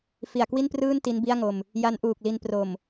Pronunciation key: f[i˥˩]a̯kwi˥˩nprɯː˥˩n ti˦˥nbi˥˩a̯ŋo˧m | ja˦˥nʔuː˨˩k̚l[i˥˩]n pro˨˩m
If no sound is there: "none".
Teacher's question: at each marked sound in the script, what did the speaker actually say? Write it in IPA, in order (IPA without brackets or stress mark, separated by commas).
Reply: i˨˩, i˧